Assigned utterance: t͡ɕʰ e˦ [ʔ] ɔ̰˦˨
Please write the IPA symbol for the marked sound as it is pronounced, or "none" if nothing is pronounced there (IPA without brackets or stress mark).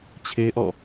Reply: ʔ